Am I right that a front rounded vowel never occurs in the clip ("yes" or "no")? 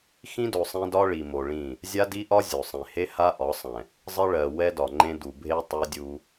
yes